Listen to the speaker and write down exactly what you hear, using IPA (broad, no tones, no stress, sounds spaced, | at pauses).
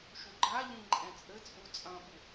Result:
ʃ u ɡ͡ǃ a ʎ ĩ ǃʼ ɛ̃ t͡sʼ ɘ t͡sʼ u t͡sʼ ɐ̃ ɓ u